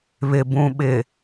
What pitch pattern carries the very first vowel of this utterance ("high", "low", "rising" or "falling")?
low